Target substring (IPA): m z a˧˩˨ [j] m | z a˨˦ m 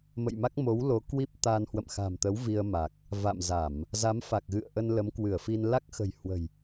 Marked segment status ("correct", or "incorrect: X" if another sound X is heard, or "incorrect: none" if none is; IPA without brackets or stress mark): incorrect: none